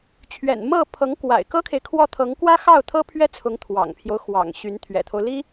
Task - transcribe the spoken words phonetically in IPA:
t͡ɕʰ ɥ ɛ̰˨˩ n m ɤ˥˩ pʰ ɤ˧˥ ŋ k w a̰˨˩ ɪ̯ k ɤ˥ kʰ e˨ ɪ̯ kʰ w ɔ˥˩ t̪ʰ ɤ˧˥ ŋ k w ä˥ x ɑ˥˩ ʊ̯ t̪ʰ ɤ˥ pʰ ɥ ɛ˥ t͡sʰ ʊ˧˥ ŋ t̪ʰ w ɑ̰˨˩ ŋ pʰ j o˦ ʊ̯ x w ɑ̰˨˩ ŋ ɕ y˧˥ n t̪ʰ ɥ ɛ̰˨˩ t̪ʰ o˦ ʊ̯ l i˥

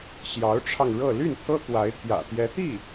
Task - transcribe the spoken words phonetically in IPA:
ɕ j ɑ˧˥ ʊ̯ ʈ͡ʂʰ ɑ˧ ŋ ɻ ɤ˥˧ l y˥˩ n t̪ʰ ɤ˥ k w a˧˥ ɪ̯ t̪ʰ j ä̰˨˩ t̪ j ɛ˧˥ t̪ i˥˩

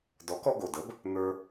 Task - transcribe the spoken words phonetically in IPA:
d ɔ˩˥ k ɔ˧ ɡ o˩ d ə˩˥ b | n̪ ə˞˧

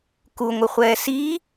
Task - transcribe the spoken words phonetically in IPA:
k u ŋʷ ɪ χʷ ɛː s i

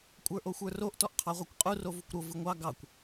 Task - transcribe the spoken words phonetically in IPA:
kʷʼ ə˞ ʔ o xʷ ə˞ r o ʔ t ɔ ʔ qʰ ɑ ʁʷ e kʷ qʼ u r o v u kʷ ɾ o v ɯ ŋʷ ɑ ɡ ɑ kʷ

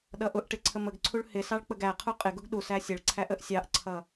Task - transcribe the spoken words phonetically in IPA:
ɗ ʌ ʔ ʊ ʔ ʈ ɪ ǀʰ ə m ə ɡ ǀʰ u ɭ h ɪ s ɑ ɭ k͡p ə ɡ æ qʰ u qʼ ɪ ɡ ʊ ɡ ɗ u s æ sʲ ə ɭ ǀʰ æ ʔ ə ʔ sʲ ɑ ʔ ǀʰ ʌ

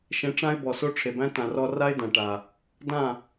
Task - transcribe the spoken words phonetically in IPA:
ʃ ẽ˧ ʈ͡ʂ ã˦ ɪ̯ b ɔ˨ s o˦ ʈ͡ʂʰ e˨ b æ̃˦ t ã˨ r ɔ˧ r a˦ ɪ̯ d ã˨ ʈ a˨ | d ã˦˨

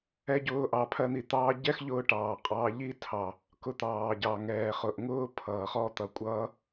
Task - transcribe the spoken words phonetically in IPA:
ɛ˦ ɟ ʊː˦ ʔ ɑ˧ pʰ ɜ˦ n̪ i˧ t̪ ɑː˦ ɟ ɛ˦ x ʎ ʊː˧ ʈ ɑː˨ qʼ ɑː˧ ʎ i˦ tʰ ɑ˨ | k ʊ˧ t̪ ɑː˨ ɟ ɑ˨ ŋ ɛː˨ χ ʊ˨ ʔ ŋ ʊː˦ pʰ ʌː˨ χ ɔ˦ t̪ ʌ˨ kʷʼ ʌː˦

